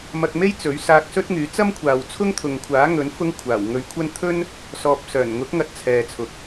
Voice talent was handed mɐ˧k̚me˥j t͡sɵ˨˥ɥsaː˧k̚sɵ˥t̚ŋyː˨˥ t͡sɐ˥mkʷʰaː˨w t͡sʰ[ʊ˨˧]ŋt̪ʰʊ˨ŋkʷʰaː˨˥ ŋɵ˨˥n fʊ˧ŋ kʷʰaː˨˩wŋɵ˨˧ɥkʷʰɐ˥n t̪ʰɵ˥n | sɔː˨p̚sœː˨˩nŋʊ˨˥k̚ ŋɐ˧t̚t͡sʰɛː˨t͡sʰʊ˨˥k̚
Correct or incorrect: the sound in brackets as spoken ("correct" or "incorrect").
incorrect